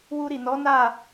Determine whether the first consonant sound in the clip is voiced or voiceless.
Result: voiced